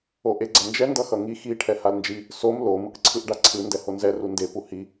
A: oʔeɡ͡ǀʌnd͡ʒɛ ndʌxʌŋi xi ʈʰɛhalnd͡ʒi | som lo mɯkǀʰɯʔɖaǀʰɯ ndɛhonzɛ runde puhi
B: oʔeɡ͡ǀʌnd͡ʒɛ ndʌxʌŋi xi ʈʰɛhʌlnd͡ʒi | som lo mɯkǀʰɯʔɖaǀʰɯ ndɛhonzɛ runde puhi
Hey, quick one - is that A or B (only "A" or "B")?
A